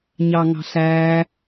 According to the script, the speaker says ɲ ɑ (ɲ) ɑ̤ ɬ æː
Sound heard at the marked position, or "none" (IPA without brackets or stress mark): ŋ